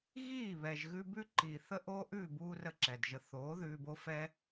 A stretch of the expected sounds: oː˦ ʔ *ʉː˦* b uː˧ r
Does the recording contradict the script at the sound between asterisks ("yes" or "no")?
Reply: yes